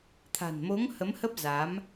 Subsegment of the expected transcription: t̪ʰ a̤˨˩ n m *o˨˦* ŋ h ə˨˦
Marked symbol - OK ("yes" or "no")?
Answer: yes